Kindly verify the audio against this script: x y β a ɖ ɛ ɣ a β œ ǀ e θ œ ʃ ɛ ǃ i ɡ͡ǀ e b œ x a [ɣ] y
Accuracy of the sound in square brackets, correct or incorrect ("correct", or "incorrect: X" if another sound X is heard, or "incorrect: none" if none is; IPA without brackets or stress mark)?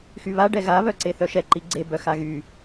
correct